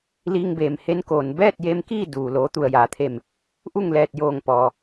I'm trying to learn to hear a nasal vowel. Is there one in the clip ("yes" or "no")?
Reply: no